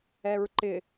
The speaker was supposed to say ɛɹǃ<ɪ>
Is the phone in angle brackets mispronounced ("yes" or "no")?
no